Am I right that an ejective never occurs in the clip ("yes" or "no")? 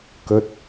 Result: yes